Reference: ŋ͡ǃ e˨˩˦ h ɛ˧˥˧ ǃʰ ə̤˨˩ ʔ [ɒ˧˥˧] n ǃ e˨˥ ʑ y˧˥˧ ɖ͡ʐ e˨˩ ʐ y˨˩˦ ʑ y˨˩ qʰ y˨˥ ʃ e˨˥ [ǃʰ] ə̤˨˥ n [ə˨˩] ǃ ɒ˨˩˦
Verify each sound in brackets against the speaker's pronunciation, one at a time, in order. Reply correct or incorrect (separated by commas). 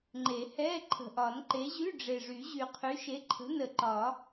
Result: incorrect, correct, correct